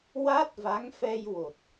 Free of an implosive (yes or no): yes